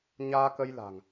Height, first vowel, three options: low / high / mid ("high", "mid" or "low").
low